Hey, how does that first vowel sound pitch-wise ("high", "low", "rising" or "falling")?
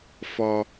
low